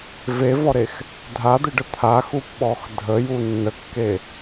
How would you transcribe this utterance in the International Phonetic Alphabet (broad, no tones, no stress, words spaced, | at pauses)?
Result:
vevɔɾex | dʱad̪ɪɖə t̪ʰaxupɓɔx dʱəju nːəkːe